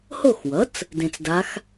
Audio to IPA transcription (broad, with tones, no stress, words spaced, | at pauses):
ho˥˧xwʌ˩˥t͡s | dẽ˧t͡sda˧˥x